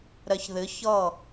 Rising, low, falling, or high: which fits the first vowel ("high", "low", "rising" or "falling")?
low